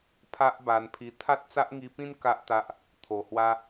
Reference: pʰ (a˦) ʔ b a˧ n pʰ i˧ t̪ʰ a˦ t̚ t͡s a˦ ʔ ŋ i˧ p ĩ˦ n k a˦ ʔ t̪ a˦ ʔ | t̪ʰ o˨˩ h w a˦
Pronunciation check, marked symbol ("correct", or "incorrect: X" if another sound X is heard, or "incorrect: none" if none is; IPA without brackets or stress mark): correct